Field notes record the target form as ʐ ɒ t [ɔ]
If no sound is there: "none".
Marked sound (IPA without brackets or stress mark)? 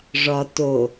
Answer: o